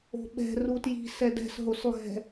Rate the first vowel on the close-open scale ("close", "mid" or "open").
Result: mid